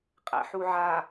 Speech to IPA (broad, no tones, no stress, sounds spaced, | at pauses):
qʼ æ̰ ħ u ʕ a